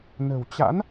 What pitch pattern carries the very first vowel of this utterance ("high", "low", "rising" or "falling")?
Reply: low